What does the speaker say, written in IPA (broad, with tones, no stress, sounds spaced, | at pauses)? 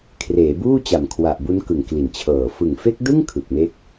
kʰ r eː˩˦ b uː˥˩ t͡ɕ a˨˩ m kʰ w a˨˩ ʔ b u˦˥ n k ɯ˨˩ ŋ k l i˨˩ n t͡ɕʰ ɤː˨˩ f ɯ˨˩ ŋ f e˦˥ k̚ d ɯ˥˩ ŋ kʰ ɯ˨˩ k̚ m e˦˥ k̚